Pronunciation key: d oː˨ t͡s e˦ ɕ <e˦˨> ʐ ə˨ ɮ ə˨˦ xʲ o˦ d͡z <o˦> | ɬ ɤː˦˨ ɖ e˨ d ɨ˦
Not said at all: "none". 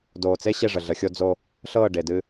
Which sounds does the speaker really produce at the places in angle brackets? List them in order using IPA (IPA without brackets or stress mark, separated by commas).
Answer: e˦˨, o˦